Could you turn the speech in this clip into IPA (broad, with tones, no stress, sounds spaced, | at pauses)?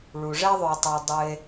ɭ u˩ ʐ ɛ˥ ðˤ ø˨ tˤ e˨ dˤ ɨ˨ e̯